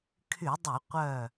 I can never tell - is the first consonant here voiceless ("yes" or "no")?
yes